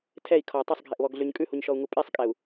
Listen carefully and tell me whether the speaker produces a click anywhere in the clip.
no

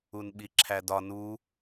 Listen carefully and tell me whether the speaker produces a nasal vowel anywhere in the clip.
no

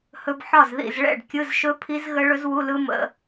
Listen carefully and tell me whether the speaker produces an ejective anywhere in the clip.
no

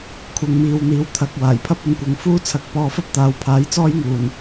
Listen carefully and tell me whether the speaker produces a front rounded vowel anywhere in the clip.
no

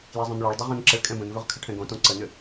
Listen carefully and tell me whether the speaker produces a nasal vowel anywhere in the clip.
yes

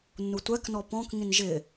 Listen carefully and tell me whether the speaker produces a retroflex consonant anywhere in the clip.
no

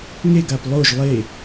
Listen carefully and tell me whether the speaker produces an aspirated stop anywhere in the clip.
no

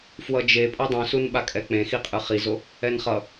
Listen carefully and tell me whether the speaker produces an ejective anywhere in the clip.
yes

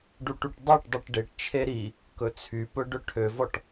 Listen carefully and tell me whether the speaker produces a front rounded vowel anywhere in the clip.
yes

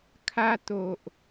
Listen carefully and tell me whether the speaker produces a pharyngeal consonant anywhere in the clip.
no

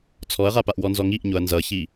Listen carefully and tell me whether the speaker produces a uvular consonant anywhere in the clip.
yes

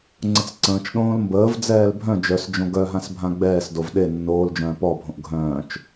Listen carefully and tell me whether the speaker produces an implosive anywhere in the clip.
yes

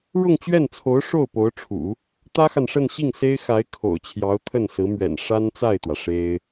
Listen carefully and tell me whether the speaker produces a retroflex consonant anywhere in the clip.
yes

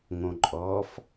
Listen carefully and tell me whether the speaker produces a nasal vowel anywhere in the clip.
yes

